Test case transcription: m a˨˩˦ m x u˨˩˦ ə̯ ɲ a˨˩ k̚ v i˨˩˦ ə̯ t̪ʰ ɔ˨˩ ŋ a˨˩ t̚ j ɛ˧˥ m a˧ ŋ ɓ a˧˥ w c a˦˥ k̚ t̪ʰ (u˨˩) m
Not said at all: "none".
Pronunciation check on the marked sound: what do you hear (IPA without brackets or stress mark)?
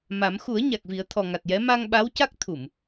u˨˩˨